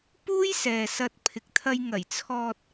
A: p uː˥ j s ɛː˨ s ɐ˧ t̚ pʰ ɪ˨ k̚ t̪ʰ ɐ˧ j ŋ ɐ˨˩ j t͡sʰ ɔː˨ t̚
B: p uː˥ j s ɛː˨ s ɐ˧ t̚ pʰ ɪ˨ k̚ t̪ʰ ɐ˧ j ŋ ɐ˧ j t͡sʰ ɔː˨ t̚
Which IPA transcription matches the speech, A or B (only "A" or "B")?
A